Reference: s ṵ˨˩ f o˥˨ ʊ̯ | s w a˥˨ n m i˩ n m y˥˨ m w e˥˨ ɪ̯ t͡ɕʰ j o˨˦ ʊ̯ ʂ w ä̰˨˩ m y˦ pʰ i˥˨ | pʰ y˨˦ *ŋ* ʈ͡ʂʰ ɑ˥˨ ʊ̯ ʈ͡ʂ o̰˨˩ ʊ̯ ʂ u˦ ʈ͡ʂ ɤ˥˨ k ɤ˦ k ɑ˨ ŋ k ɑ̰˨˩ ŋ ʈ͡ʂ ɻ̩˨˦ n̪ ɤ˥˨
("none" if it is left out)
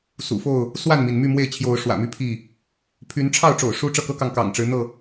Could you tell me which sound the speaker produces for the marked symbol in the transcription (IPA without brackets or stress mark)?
n